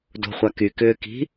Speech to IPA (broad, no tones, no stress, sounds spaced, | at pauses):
d o̤ χʷ a k y k ʏː k i̤